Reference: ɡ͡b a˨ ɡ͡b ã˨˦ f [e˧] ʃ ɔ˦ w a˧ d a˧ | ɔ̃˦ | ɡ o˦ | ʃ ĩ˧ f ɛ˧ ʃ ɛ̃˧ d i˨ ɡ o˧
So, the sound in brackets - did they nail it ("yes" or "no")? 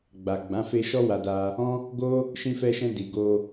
yes